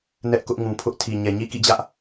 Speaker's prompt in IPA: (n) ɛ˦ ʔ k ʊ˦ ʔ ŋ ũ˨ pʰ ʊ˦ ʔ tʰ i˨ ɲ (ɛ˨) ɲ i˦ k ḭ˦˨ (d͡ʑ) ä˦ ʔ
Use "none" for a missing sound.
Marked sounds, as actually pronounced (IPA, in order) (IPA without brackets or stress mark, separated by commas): n, ɛ˨, d͡ʑ